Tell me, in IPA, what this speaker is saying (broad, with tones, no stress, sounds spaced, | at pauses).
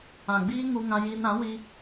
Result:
ã˨ ɡ͡b iː˦ ŋ u˧ ŋ ã˧ j iː˧ n ɾ ã˨˦ w i˧